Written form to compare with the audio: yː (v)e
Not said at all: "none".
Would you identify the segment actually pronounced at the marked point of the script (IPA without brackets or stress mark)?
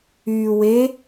w